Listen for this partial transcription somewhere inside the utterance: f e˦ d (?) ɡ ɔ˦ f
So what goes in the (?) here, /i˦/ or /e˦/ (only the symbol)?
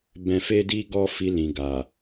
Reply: i˦